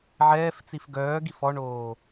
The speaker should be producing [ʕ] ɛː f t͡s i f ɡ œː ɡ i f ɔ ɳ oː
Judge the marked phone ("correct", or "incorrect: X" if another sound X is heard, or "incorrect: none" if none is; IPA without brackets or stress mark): correct